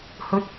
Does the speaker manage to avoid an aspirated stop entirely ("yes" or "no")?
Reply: yes